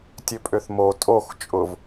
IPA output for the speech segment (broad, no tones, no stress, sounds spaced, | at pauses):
tʲ ø pʼ ø θ m o tʼ o x t͡ʃʼ ʊ v